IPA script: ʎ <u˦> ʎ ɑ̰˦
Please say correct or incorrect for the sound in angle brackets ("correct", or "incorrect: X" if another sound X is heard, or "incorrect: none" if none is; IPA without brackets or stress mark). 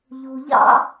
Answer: incorrect: u˨